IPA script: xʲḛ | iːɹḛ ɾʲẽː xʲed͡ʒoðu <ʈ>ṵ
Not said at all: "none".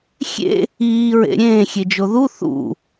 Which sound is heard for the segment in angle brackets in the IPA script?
θ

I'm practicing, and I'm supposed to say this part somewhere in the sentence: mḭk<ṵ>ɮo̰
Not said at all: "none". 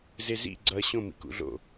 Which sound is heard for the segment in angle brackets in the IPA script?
ṵ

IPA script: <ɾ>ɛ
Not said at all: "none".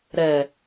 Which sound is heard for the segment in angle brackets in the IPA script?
ɾ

